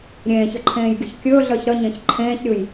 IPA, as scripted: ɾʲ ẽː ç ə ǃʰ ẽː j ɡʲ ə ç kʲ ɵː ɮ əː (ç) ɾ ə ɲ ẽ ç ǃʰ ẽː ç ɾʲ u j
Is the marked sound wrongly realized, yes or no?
no